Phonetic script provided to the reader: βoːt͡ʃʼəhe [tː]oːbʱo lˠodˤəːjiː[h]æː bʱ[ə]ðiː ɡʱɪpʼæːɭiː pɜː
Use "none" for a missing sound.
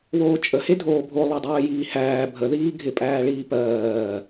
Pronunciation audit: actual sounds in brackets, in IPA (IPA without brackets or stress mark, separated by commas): dʱ, h, ə